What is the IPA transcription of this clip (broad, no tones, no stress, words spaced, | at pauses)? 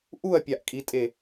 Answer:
ʔuɐ̯pʲaʔkʼitʼe